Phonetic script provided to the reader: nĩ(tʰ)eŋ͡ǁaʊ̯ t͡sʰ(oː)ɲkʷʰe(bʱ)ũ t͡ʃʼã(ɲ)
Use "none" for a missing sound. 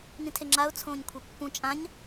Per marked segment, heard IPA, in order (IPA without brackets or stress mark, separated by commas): tʰ, õː, pː, ɲ